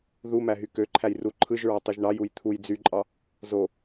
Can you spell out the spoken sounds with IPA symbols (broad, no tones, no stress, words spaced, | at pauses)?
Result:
ðu mæɦykøǃʰæj ruǃʰɯʒɹɑ tˤuʒɳɑjuj t̪ʰuj d͡zyǃʼɑ | zo